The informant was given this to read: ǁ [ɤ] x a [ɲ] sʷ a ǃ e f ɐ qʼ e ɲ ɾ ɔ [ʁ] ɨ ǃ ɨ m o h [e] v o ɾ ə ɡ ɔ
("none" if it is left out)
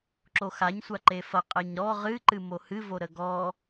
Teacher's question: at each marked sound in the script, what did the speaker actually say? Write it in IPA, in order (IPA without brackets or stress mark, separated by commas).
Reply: o, ɲ, ʁ, ɨ